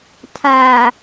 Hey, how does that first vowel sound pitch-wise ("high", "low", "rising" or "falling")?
low